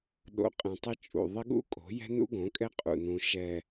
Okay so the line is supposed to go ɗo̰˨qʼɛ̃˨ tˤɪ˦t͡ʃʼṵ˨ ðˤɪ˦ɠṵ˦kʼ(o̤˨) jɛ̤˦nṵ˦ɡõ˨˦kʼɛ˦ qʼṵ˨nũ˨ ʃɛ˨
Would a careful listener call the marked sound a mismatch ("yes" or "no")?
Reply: yes